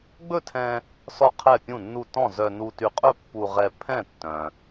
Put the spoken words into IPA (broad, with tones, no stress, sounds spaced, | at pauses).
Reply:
ɡ͡b ɵ˥˨ tʰ ɛ̃˧ | s ɔ˥˨ qʰ ɛ˥˨ pʲ ũ˥˨ nː u˥˨ t ɔ̃˥˨ z œ˧ n u˧ t y˧ qʼ ɵ˥˨ pː u˧ ʁ ɛ˧ pʰ ɛ̃˥˨ tː œ̃˧